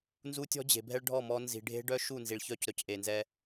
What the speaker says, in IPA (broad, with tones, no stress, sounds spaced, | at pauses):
n z u˦ tʲ ɔ̤˦ d͡ʑ e̤˨ bʱ ɛ˦ ɭ ɖʱ ɔ˦˨ m ɔ˦ n z i̤˨ ɖʱ e̤˦ ɖ œ˦ ʃ u˦˨ n z i˨ ɭ ç œ˦ c ɾ œ˨ c ʔ e˨ n z ɛ˦